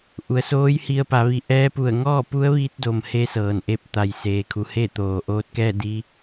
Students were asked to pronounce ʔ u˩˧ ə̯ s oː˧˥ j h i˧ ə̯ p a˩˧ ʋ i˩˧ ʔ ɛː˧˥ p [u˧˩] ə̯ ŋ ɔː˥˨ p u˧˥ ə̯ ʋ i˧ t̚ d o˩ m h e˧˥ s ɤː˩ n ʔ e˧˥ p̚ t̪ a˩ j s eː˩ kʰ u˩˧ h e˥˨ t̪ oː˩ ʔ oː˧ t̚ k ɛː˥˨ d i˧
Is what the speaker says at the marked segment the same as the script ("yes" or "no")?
yes